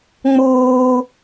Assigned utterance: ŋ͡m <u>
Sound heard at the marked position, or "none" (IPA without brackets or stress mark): uː